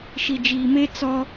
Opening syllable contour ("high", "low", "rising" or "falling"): low